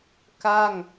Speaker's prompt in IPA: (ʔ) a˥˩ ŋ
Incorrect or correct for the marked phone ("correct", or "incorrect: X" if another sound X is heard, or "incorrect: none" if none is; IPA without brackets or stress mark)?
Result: incorrect: k